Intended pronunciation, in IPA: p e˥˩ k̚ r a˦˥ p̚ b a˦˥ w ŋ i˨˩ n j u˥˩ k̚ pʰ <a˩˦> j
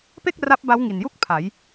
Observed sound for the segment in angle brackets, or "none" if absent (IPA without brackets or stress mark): a˩˦